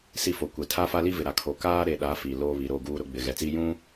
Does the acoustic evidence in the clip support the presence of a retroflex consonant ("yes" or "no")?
no